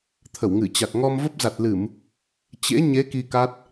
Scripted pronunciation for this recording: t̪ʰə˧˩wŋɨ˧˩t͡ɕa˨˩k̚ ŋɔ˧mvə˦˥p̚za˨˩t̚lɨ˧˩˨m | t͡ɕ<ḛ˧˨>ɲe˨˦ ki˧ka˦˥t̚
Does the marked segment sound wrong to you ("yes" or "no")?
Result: yes